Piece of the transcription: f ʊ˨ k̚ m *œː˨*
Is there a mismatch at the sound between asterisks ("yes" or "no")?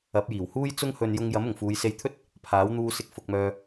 no